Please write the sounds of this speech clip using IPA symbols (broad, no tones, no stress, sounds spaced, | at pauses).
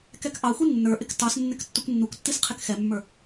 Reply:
k ɛ k ʔ ɑ xʷ i nː ə˞ ʔ ɪ k t ɑ s nː ɪ k tː u kʷ nː u kʷ tː i s qʰ ɪ k x ɛ mː ə˞